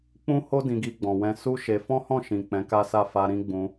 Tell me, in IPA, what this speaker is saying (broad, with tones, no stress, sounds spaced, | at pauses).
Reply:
k͡p ũ˦ h o˦ d ĩ˧ ɡ i˧ ɡ͡b ɔ̃˨ w ɛ̃˧ s u˦ ʃ e˧ f ɔ̃˦ h ɔ̃˦˨ ʃ ĩ˨ k͡p ɛ̃˨˦ k a˦ s a˦˨ f a˧ ɾ ĩ˦ ɡ͡b ũ˧